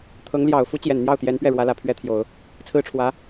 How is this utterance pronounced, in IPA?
t̪ʰɤ˧˥ŋljɑ˨˩ʊ̯ fu˥t͡ɕjɛ˨˩nn̪jɑ˥˩ʊ̯ t̪jɛ˧˥npɥɛ˥˩ɻwä˧˥ lä˨˩pʰɥɛ˥t̪ʰjo˨˩˦ʊ̯ | t͡sʰɹ̩˥ʈ͡ʂʰwä˧˥

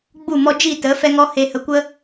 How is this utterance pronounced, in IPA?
ɡ͡bu˦˨ mɔ˧d͡ʒi˦˨tə˨˦ fɛ˦ŋɔ˦ he˧ hə˧kʷə˦

